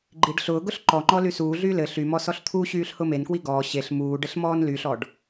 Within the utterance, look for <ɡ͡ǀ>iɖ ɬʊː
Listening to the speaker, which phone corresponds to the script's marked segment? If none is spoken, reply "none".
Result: ɡ͡ǃ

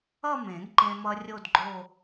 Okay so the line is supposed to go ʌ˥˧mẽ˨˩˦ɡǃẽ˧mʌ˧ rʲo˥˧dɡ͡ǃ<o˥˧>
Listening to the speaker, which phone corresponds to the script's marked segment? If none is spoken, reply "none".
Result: o˥˧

